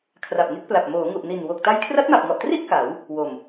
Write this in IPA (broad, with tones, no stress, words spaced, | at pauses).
kʰra˨˩p̚ŋe˥˩k̚pla˨˩p̚ moː˩˦ŋu˨˩ʔni˨˩n wo˨˩k̚ta˦˥j kʰra˦˥t̚ma˨˩p̚ŋɔ˨˩ʔtri˥˩ʔ ka˩˦w | wo˨˩m